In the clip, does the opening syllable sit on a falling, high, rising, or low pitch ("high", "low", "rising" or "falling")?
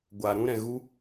low